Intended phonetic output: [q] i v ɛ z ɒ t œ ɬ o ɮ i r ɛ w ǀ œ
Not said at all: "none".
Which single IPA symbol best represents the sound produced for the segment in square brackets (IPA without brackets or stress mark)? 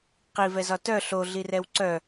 q